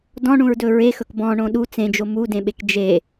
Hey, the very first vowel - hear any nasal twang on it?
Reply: yes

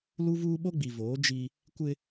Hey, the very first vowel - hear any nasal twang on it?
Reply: no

